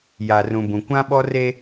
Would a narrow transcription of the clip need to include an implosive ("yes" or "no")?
yes